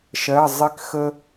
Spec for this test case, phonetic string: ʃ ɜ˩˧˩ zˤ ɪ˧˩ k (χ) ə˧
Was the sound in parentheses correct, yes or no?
no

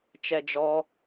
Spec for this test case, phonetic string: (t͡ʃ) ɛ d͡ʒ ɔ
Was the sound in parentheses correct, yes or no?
yes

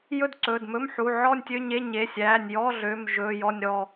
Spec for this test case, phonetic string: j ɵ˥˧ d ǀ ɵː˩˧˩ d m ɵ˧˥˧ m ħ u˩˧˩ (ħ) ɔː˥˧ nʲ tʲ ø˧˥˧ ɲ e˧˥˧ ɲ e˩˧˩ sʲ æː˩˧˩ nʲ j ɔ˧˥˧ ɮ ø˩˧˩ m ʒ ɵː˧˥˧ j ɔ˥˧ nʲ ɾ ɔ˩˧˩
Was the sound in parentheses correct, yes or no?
no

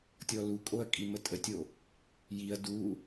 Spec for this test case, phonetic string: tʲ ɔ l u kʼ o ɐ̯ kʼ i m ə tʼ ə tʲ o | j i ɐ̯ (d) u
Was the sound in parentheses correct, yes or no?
yes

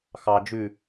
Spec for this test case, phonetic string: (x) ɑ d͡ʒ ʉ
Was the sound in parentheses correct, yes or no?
yes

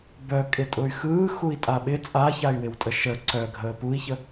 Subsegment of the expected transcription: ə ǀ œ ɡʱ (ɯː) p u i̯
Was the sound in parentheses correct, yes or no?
no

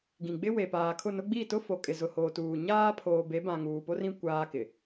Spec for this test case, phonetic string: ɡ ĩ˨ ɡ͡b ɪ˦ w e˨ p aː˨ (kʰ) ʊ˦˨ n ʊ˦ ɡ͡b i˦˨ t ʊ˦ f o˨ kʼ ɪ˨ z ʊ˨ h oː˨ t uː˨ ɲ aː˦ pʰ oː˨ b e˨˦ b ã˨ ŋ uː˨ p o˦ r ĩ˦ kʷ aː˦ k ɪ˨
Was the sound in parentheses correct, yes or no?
yes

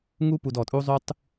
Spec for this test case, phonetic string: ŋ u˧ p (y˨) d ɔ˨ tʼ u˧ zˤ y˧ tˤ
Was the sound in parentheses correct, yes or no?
no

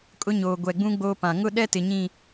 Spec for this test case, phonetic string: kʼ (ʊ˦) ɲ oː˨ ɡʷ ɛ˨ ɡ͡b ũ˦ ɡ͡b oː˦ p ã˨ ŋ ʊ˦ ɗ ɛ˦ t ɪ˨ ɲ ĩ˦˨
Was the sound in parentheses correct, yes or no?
yes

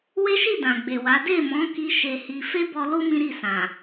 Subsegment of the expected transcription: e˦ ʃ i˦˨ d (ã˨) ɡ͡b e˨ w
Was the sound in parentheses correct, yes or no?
yes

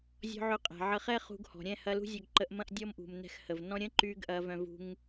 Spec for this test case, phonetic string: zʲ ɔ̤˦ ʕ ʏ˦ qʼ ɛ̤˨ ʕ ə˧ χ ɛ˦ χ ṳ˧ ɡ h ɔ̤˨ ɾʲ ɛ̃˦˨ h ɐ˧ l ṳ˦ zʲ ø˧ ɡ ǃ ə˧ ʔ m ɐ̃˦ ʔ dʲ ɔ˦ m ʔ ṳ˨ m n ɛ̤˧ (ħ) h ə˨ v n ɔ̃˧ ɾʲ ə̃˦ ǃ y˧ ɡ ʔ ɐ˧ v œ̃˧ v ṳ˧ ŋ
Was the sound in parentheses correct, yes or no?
no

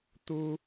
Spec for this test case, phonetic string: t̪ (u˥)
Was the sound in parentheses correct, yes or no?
yes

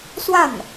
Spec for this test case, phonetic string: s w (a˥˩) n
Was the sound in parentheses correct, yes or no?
yes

